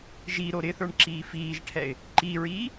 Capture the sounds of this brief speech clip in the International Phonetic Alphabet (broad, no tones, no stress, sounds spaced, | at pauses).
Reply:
ʒ i ɾ o ɾ ɪ θ ə˞ ɳ ǁ iː f iː ʒ ʈʰ ɛ ɪ̯ | ǃ i ɹ iː